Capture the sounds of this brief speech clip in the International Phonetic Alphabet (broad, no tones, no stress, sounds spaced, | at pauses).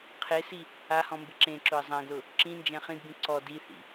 qʰ e s i | a h ɔ̃ m b ɪ ǁ ẽ ǁ ʊ ə̯ zˤ ã ɡ l ʊ | ǁ ĩ n d͡ʒ ɛ̃ χ ĩ d b ĩ ǀ ɔ d i θ ḭ